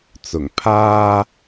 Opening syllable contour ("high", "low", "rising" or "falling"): low